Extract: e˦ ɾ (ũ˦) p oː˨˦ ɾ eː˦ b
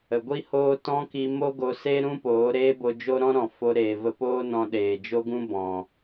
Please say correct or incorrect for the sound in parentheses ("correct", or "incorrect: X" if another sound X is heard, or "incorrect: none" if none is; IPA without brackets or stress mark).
correct